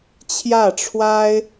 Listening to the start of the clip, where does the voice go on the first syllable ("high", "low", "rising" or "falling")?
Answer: falling